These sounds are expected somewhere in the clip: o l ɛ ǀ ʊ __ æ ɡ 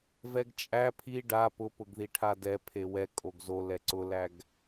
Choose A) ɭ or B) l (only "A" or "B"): B